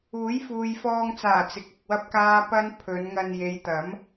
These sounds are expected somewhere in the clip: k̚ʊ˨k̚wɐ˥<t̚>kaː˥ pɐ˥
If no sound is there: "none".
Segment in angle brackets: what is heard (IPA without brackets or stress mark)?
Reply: p̚